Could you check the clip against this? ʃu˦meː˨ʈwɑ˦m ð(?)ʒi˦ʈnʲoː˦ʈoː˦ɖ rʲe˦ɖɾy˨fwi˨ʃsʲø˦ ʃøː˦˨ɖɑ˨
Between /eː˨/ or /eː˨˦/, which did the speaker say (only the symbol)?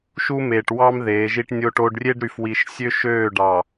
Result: eː˨˦